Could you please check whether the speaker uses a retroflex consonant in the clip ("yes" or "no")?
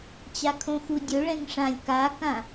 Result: yes